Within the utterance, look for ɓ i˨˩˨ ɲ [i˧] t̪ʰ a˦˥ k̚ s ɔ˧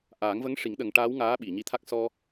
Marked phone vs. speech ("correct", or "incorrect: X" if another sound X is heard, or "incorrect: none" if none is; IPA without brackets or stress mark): correct